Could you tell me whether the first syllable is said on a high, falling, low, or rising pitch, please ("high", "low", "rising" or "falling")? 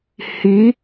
rising